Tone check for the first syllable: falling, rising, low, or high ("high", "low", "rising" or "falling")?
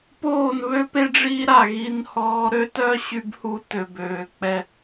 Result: falling